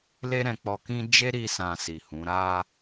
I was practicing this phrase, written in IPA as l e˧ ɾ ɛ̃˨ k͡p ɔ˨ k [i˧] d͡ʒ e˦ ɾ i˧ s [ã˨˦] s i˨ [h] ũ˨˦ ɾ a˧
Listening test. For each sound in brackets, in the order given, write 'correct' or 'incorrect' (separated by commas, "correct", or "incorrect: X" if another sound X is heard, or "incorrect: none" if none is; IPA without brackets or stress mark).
incorrect: ĩ˧, incorrect: ã˨, correct